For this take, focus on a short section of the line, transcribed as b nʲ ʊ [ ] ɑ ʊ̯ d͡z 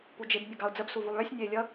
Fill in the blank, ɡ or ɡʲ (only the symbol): ɡ